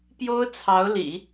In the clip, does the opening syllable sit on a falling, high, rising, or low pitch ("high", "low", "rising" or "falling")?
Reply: high